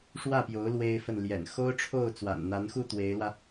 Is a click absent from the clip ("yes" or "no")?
yes